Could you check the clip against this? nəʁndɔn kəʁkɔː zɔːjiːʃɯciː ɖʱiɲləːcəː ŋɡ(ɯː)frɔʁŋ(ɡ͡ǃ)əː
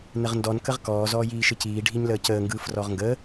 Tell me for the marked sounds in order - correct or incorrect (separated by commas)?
correct, incorrect